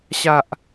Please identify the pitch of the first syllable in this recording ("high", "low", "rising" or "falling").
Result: low